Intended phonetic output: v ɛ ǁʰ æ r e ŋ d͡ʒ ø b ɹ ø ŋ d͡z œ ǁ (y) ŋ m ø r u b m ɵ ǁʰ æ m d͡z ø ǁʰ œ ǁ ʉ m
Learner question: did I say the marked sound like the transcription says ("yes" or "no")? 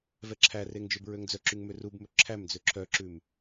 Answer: yes